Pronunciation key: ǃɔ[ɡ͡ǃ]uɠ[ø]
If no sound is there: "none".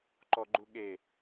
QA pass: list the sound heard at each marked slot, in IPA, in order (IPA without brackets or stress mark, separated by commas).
ɡ͡ǃ, e